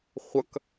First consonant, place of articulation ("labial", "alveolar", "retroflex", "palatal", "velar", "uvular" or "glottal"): uvular